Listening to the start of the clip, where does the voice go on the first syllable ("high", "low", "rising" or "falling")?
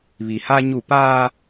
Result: low